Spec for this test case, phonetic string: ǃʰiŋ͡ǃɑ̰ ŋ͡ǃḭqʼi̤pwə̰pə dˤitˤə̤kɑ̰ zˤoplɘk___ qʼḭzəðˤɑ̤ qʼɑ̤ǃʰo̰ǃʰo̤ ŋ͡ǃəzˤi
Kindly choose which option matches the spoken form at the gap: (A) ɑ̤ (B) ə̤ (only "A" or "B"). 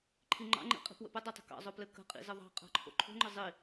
B